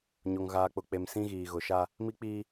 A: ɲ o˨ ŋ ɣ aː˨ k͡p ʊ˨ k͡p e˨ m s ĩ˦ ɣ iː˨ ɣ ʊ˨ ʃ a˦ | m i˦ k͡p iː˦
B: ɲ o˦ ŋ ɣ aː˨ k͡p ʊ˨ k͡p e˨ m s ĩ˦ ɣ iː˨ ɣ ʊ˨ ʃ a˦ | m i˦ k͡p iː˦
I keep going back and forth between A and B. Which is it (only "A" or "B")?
A